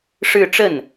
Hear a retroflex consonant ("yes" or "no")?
yes